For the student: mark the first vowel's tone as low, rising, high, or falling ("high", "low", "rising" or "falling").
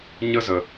high